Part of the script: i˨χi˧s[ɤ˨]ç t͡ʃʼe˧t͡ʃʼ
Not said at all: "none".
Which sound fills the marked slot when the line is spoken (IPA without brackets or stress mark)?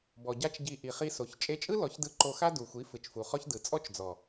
o˨